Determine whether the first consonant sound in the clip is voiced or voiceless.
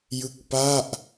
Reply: voiced